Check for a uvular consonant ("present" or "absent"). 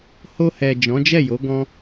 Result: absent